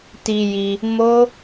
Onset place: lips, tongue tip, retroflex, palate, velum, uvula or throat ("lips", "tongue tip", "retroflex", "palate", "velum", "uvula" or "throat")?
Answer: tongue tip